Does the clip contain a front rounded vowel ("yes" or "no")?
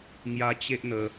no